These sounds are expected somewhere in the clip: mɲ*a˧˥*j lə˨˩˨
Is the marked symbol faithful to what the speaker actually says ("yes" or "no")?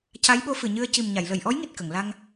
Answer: no